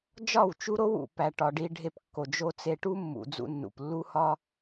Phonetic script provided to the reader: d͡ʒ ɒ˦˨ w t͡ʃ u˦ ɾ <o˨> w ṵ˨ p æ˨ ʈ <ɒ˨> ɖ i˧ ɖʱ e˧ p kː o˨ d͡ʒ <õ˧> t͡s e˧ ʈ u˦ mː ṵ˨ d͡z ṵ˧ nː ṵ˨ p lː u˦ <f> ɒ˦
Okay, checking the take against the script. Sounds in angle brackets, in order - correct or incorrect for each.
incorrect: o˦, correct, incorrect: o˧, incorrect: h

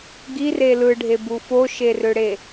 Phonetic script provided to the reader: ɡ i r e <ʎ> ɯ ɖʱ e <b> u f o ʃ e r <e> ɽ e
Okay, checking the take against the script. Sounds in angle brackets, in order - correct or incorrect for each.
incorrect: l, correct, incorrect: ø

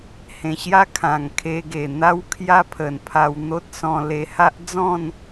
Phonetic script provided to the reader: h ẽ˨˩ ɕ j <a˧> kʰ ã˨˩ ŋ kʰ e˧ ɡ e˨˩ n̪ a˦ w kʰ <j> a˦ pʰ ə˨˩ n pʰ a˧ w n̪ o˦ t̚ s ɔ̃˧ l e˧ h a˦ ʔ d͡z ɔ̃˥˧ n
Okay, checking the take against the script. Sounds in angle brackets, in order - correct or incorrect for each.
incorrect: a˦, correct

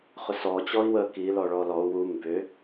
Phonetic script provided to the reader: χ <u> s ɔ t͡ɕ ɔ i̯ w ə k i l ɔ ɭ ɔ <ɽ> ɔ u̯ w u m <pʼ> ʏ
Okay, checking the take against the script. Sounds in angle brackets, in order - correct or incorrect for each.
incorrect: ʏ, incorrect: l, incorrect: b

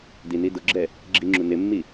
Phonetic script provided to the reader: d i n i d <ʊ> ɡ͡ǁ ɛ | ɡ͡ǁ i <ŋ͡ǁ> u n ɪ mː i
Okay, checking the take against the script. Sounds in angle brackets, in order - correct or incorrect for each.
correct, correct

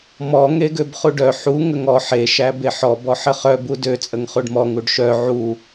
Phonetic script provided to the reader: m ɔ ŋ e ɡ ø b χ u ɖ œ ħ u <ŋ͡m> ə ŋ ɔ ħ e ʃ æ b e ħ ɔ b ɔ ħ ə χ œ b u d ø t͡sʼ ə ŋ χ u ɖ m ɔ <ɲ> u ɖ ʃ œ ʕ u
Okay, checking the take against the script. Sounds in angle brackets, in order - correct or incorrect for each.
incorrect: ŋ, incorrect: ŋ

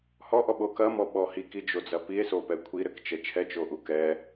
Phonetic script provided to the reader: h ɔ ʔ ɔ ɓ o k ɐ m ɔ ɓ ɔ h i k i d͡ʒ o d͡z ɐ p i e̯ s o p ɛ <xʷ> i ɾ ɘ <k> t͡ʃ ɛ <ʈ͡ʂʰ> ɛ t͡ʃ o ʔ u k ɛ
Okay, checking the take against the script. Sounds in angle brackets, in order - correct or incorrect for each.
incorrect: kʷʰ, correct, incorrect: t͡ʃʰ

